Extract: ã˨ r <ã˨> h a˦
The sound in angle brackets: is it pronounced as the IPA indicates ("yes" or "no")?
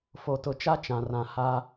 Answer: yes